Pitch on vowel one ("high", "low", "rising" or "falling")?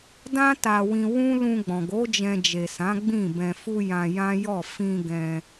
high